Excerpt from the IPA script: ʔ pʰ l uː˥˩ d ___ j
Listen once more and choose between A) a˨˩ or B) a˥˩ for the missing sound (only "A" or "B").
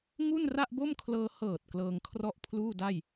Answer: B